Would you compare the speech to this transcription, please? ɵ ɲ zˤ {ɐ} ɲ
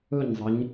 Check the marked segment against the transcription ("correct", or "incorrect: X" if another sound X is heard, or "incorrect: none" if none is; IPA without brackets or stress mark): correct